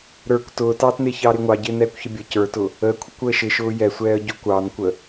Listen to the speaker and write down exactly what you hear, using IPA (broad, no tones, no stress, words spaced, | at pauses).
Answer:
ɾə˞kʷ tʊːtɑːtnɪːçɑː ɾɪːŋʷɑɟɪː nɛːkʷçəbʲə cə˞tʊ | əːkʷʰə kʷəːʃɪ ʃʊːjɛsʷɛːə̯ ɟʊːkʷɑːnkʷəː